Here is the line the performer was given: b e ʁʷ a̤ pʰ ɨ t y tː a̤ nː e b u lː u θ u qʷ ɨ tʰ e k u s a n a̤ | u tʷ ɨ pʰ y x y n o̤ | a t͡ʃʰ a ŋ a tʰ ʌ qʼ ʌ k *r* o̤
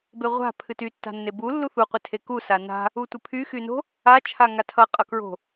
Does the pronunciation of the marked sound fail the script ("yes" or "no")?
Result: yes